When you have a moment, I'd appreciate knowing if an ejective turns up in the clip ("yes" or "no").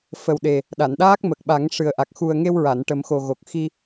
no